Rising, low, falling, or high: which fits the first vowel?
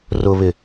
low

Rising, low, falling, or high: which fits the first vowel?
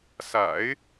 low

